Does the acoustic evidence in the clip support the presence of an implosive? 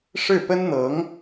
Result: no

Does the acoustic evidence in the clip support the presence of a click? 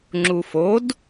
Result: yes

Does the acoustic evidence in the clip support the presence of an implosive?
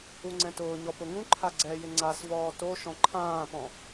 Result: no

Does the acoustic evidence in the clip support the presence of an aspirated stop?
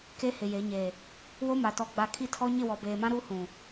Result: yes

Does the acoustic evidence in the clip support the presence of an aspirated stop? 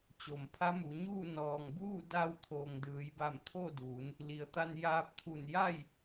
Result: yes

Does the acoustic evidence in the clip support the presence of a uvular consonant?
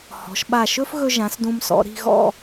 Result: no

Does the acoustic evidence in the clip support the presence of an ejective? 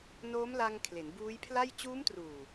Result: no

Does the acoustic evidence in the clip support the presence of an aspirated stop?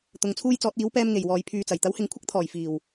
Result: yes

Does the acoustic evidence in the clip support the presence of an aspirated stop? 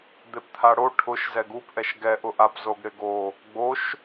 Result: yes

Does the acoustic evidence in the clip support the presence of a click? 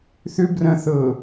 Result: no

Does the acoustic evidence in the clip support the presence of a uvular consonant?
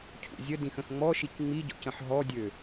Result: no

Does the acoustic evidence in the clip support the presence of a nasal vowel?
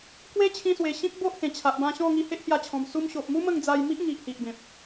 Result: yes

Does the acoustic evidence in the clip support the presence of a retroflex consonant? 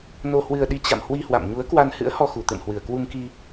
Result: no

